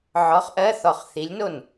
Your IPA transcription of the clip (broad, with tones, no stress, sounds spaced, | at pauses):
ʕ ɔ˨˥ χ ʔ ɜ˧˥˧ θ ɔ˧˩ χ θ i˨˥ lʲ n o˥˩ n